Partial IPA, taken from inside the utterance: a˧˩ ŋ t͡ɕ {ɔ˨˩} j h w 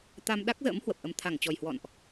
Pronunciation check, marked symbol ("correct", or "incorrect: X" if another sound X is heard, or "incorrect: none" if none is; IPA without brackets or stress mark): correct